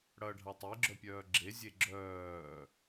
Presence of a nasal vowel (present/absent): absent